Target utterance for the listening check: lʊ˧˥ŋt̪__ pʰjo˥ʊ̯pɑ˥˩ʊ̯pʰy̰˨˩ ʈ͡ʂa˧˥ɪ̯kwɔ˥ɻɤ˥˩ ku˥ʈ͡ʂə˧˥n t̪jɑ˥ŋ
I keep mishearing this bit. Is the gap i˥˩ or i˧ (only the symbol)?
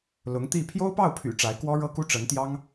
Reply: i˥˩